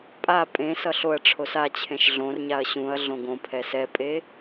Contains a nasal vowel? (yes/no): yes